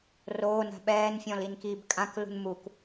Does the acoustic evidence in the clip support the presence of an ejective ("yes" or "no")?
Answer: yes